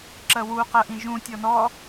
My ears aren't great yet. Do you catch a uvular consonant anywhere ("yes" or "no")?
yes